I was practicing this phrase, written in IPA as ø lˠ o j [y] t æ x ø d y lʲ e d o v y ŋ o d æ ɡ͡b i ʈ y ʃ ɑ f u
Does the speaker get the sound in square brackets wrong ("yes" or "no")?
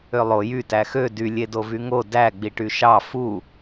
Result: no